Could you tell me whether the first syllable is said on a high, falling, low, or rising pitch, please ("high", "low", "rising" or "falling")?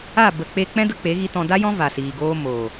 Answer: falling